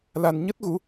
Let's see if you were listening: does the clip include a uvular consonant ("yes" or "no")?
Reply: no